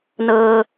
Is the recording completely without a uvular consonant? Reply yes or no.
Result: yes